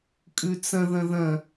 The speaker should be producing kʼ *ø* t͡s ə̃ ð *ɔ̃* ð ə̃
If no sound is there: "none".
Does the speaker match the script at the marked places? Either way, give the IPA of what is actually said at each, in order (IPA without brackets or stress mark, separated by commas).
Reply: ʉ, ə̃